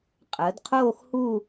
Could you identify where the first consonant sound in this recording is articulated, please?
uvular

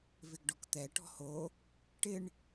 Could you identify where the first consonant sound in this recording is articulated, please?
labial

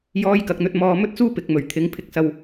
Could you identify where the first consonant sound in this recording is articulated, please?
palatal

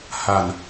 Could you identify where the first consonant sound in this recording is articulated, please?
glottal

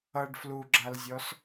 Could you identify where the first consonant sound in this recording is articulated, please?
retroflex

